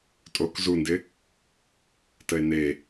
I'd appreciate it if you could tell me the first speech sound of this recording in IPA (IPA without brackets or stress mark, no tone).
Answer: tʼ